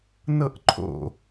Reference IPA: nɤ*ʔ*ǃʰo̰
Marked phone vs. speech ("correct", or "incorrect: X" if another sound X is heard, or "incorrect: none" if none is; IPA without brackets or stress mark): correct